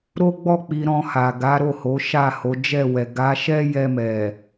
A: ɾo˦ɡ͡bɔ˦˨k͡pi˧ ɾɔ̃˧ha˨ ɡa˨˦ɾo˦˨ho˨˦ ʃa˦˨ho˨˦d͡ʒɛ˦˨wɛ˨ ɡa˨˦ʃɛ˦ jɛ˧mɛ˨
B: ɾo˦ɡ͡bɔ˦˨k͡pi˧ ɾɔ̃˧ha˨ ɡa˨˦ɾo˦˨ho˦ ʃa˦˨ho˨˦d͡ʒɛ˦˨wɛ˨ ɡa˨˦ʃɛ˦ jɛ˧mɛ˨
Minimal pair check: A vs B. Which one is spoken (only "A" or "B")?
A